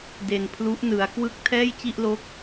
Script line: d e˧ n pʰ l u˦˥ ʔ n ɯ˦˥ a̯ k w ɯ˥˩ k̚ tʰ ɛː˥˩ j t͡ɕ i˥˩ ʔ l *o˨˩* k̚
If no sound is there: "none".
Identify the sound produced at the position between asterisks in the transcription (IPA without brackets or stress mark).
o˦˥